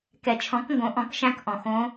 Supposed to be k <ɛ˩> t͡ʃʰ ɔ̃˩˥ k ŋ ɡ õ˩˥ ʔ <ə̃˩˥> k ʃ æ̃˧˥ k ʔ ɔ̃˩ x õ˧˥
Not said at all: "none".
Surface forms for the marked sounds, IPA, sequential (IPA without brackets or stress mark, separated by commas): ɛ˩, ɔ̃˩˥